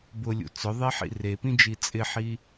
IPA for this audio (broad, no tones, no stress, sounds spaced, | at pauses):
b ʊ lʲ ṵ t͡s ʊ ðˤ e ħ ḭ r e p ĩ d͡ʒ i t͡sʼ ɪ ħ i